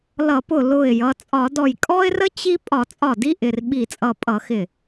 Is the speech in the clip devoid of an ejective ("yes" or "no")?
no